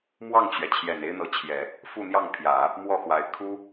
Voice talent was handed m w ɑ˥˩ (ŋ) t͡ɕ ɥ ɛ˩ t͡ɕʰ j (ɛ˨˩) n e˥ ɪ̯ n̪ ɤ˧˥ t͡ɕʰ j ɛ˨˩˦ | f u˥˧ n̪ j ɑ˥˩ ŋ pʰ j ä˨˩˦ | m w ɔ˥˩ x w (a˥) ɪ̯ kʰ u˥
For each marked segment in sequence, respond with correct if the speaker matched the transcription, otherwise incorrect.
correct, correct, incorrect: a˧˥

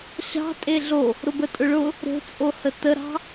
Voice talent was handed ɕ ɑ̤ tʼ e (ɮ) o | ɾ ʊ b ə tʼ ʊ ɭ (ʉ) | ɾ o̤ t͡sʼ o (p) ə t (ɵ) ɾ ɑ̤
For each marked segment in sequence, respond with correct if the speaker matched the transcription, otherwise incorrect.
correct, incorrect: ʊ, incorrect: h, incorrect: ə

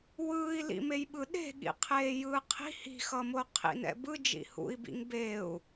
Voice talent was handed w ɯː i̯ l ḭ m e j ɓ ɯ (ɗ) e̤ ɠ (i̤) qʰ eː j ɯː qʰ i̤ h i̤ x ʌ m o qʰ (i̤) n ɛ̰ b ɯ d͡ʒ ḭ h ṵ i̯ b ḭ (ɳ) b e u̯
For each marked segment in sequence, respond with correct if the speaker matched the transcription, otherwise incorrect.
correct, incorrect: ḭ, incorrect: ḭ, incorrect: ŋ

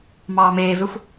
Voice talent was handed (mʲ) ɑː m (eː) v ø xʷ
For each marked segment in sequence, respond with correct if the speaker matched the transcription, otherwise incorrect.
incorrect: m, correct

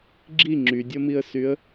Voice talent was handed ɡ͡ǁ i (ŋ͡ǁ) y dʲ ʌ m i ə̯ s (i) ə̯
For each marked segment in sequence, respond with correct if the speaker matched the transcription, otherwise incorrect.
correct, incorrect: y

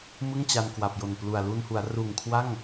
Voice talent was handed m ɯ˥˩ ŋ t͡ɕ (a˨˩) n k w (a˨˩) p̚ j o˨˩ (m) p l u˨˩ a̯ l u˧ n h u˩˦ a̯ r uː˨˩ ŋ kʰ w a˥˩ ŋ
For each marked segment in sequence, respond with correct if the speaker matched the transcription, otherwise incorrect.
incorrect: a˧, correct, incorrect: n

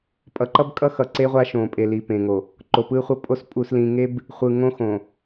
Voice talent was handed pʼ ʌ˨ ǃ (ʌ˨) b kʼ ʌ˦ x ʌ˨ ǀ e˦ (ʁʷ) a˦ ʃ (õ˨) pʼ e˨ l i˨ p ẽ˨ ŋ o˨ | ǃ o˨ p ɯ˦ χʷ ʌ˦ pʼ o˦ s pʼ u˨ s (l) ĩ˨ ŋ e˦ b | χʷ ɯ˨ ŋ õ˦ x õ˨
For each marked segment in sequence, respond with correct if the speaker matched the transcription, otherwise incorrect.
incorrect: ʌ˦, correct, correct, correct

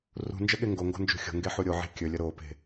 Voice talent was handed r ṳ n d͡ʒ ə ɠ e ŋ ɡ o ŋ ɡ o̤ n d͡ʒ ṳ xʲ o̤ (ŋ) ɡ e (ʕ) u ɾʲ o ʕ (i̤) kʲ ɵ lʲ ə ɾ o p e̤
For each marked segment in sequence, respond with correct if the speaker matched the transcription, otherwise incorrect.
correct, incorrect: ħ, incorrect: e̤

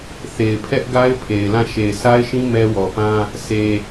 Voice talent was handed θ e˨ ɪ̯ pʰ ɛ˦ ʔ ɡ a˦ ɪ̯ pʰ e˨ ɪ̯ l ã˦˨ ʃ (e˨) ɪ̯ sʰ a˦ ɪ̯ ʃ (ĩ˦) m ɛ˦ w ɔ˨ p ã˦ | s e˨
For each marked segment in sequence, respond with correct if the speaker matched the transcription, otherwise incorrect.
correct, correct

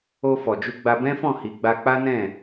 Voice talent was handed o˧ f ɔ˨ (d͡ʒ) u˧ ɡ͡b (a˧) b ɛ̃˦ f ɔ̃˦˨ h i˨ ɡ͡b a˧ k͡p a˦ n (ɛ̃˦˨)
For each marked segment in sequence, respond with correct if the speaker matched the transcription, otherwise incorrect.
correct, correct, correct

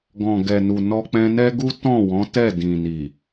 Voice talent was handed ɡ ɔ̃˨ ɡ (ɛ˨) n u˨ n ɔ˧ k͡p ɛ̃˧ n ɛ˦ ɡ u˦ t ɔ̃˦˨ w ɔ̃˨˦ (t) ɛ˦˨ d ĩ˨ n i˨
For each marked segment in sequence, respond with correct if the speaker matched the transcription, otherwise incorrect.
correct, correct

